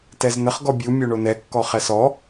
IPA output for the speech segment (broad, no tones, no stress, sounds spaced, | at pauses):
t ɛ z n ə χ ɡ ɔ bʲ u mʲ o ɳ o n ɛ kː ɔ χ ɛ s ɔ